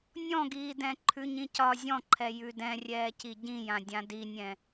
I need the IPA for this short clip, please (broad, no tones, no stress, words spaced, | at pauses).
nʲɔ̃ɡiːdɛ̃ ǃʰʉɲĩcɒ zʲɔ̃ǃʰɛ jʉdɛ̃rʲɛː ciɟĩjã dʲãdinʲɛ̃